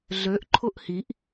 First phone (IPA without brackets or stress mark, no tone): ɮ